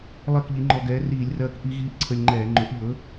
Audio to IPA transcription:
lˠ ɜ˥˨ k ʎ i˨˥ ŋ͡ǃ ɔ˧ ɡ ɛː˨˥ r iː˧˩˧ lʲ r ɜː˧ k ʔ i˦˥ ɣ iː˦˥ ʔ ǀʰ ə˧ lʲ ŋ͡ǃ ɛː˧˩˧ ŋ͡ǃ ɵ˨˥ ʔ ʎ ɵ˨˥

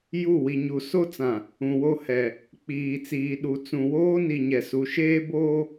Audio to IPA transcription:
j u˦˨ w i˨ ɲ u˨ s o˦ t͡s ã˨ | ũ˨ w o˦ h ɛ˨ | k͡p iː˨ t͡s iː˨ ɗ u˨ t͡s ũ˨ w oː˦ n i˨ ɲ ɛ˨ s u˨ ʃ eː˦ b oː˦

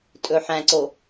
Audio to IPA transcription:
tʼ ɵ ħ æ̃ ǀ o

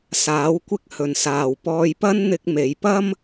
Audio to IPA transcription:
s aː˨˥ w kʷ ɪ˥ k̚ h ɵ˨ n s aː˨ w p ɔː˧ j p ɐ˥ n n̪ ɪ˧ k̚ m e˨˧ j p ɐ˥ m

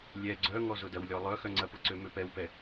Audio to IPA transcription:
lʲ ɛ ɡ͡ǀ œ ŋ ɔ z ʊ d ɐ w lʲ ɔ lˠ œ x œ ŋ͡ǀ ɐ p ʊ ǀ ø m ø p ɛ w p ɛ

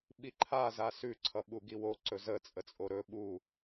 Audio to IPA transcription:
ɓ i ǃʰ a z a s ʉ ǀʰ ʌ ɓ u ɡ i w o ǀ ɵ z ə t͡sʼ ə t͡sʼ o ɾ ɵ ɓ u

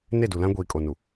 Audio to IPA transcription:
n e˦˨ d u˨ l ã˦ ɡʷ iː˨ kʼ o˨ n u˨

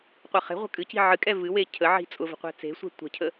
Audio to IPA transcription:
qʷ ɛ χ e̤ ʁʷ ə̤ kʼ ɨ c i̤ ʕ ɨ kʼ ɛ v ɨ w e cʰ ə ʕ i̤ t͡sʼ ʊ v ə̤ qʷ ɛ̤ t͡s e̤ sʷ ɛ̤ tʷ ə̤ cʰ ə

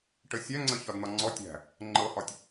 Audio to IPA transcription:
ʈ ə sʲ æ ŋ͡ǀ ə ç ɒ d n̪ ɒ ŋ͡ǀ ɔ tʲ æ̤ | ŋ͡ǃ ɤ h ɒ tʲ

